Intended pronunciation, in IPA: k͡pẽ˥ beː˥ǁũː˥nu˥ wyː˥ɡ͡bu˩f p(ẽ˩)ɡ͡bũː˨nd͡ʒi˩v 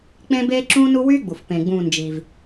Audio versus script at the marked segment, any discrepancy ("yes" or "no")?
no